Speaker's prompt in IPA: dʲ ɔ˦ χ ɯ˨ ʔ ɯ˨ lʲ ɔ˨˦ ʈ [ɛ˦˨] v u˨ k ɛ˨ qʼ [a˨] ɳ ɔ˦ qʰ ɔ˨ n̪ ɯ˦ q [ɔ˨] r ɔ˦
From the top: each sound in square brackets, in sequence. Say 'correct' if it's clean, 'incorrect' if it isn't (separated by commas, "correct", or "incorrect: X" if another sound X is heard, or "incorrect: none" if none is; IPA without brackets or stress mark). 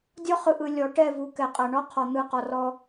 correct, correct, correct